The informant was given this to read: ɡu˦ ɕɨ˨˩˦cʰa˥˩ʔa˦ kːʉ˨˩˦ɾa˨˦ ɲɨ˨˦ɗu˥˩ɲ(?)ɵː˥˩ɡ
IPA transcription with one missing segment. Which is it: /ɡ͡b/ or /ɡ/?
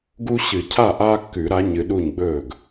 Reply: ɡ͡b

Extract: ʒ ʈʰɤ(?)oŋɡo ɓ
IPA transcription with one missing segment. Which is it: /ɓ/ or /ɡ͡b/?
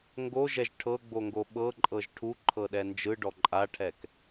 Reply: ɡ͡b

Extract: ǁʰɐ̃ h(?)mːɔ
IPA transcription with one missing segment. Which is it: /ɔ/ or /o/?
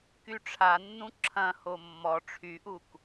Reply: o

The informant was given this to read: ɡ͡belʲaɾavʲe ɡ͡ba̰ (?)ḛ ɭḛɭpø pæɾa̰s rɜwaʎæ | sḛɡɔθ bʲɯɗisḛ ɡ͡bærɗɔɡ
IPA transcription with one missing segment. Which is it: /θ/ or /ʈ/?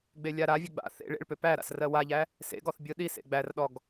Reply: θ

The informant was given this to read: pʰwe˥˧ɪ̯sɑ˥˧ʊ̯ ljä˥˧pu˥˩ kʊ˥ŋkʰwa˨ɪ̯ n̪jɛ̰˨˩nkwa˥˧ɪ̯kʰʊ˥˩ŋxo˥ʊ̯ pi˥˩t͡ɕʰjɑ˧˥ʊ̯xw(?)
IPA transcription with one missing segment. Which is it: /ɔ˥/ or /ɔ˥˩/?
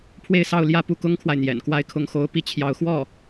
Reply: ɔ˥˩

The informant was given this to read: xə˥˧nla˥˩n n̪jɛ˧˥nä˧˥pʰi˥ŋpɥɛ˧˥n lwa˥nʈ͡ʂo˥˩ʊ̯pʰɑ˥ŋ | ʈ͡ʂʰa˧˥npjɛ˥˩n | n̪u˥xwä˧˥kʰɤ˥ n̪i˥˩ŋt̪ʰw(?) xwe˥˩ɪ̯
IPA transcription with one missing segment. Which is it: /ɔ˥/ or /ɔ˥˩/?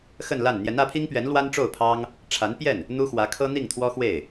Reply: ɔ˥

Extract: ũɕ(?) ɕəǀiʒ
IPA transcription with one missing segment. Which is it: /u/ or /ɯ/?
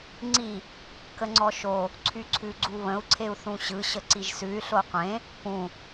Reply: ɯ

